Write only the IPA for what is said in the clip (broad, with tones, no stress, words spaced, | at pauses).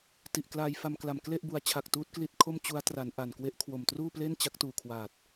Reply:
ti˨˩ʔklaː˧jfa˧mkla˨˩m kle˥˩ʔbu˨˩a̯t͡ɕʰa˨˩k̚ tuː˦˥t̚kli˦˥t̚kʰo˥˩m t͡ɕu˦˥a̯ tra˩˦n ʔa˨˩nkwe˦˥ʔ kʰwo˨˩mtruː˥˩ple˥˩n t͡ɕa˦˥k̚tuː˨˩kʰwaː˨˩t̚